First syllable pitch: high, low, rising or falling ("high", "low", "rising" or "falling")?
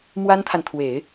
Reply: high